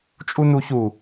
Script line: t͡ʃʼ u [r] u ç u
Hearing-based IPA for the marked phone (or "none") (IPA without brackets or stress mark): n